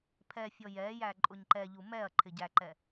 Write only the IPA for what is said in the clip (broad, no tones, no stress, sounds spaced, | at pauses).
pʰ ɛ fʲ ɔ j ɛ j æ ǃʼ ʊ ɲ ǃ ɛ ʎ u m ɛ ɐ̯ ǃʰ ɪ ɟ æ ǃ ɛ